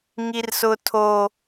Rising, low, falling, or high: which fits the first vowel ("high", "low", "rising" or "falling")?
high